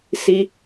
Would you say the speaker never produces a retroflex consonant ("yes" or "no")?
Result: yes